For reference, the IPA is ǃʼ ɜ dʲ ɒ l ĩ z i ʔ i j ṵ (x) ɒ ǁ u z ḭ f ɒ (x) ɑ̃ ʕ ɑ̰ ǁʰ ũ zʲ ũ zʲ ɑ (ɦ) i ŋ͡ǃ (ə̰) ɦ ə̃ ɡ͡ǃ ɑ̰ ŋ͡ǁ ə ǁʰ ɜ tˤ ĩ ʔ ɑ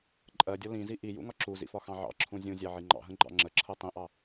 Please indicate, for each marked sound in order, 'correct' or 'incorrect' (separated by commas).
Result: incorrect, correct, incorrect, incorrect